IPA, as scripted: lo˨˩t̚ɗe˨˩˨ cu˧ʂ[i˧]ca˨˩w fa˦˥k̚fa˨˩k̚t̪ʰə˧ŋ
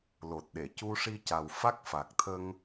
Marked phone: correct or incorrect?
correct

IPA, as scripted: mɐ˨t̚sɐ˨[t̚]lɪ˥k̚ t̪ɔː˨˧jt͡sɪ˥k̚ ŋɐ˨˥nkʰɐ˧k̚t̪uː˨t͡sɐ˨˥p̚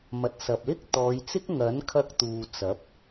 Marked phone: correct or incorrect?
incorrect: p̚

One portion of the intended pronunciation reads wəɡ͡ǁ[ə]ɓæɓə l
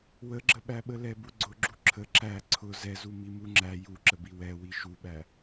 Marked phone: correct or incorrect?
correct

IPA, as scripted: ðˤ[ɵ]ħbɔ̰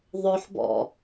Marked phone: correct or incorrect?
incorrect: ʊ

